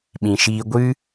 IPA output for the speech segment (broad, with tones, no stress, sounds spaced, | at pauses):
ɓ ĩ˨ ʃ iː˧ ɡʷ ɨ˦